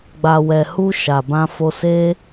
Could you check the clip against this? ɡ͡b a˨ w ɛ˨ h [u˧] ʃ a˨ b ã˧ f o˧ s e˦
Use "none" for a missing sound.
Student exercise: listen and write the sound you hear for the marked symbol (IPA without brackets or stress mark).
u˧